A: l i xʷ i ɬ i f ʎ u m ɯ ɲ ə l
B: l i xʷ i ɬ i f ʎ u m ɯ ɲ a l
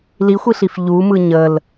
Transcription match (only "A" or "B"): A